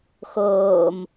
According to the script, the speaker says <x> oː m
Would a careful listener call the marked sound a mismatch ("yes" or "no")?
no